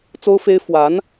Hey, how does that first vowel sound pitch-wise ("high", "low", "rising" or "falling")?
high